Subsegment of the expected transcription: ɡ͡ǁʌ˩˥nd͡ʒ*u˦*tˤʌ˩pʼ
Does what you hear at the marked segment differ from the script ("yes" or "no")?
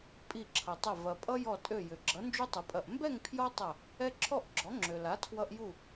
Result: no